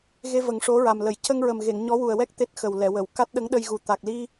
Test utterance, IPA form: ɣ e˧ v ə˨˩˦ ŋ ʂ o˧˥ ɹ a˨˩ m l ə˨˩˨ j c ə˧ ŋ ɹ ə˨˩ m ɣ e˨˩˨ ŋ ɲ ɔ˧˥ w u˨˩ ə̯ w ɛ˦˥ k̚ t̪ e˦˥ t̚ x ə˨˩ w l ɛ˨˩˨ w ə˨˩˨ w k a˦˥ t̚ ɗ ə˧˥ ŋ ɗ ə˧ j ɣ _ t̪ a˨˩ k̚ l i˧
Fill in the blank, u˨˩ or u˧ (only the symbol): u˨˩